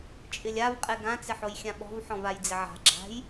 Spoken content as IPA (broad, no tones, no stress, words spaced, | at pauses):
t͡ʃʼɪlʲav qʼɛɡã t͡sɪħojxʲãɓɔ̤v ħɔ̃vajd͡zɪʕa̤ ɡ͡ǁa̤j